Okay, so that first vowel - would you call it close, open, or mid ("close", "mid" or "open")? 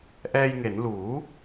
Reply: mid